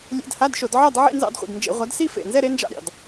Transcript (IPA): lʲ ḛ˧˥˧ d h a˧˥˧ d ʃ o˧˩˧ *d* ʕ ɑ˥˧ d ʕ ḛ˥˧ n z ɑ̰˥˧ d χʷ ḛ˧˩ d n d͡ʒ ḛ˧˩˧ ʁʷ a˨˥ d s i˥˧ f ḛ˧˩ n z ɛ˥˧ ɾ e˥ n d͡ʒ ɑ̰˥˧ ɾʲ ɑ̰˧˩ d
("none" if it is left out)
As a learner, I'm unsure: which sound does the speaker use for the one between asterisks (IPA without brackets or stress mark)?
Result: d